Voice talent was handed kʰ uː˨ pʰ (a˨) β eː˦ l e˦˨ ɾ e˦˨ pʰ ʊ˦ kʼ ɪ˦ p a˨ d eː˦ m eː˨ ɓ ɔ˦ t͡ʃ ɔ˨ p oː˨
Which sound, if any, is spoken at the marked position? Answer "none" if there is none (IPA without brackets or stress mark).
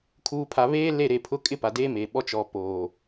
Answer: a˨